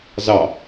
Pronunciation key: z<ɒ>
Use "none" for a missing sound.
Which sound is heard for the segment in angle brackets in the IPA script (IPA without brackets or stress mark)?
ɑ